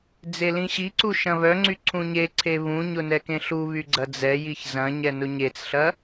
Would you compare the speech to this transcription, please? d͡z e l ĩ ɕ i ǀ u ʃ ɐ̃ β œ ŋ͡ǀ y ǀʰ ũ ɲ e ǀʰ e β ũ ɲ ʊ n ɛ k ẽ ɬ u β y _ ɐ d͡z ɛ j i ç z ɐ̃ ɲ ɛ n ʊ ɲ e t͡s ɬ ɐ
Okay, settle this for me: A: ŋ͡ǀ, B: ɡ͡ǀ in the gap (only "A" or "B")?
B